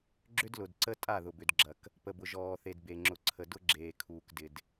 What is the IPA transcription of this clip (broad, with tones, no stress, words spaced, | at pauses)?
ɡ͡ǁʏ˦dlʊ˨dǀə˦ tʼa˦˨ðʊ˨bʏ˨dɡ͡ǁɐ˨k | pə˨bʊ˨ʒɔː˨θe˨d be˨ŋ͡ǁʊ˨ǀʰə˨ dʊ˦ɡ͡ǁeː˨ kʰuː˨kdɪ˨d